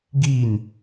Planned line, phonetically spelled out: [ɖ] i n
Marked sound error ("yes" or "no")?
yes